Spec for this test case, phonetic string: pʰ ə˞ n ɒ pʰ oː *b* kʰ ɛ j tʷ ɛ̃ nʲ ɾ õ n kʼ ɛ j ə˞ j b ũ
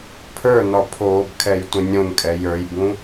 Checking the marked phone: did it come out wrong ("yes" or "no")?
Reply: no